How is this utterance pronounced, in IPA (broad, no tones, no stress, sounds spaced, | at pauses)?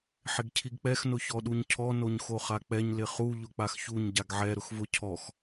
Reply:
ħ ɪ ɡ cʰ i ɡ k͡p ɛ x n ʊ ç ɔ ɗ u ɲ cʰ ɔ n o ɲ x o χ a k͡p ɛ ɲ l ɪ χ u ʎ ʊ k͡p a x ç u ɲ ɟ a ɡ ʕ ɛ ɾ ʊ x v ʊ cʰ ɔ x